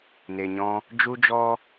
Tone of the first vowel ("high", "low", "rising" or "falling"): low